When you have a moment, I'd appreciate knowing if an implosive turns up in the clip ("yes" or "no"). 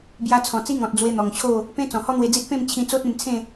no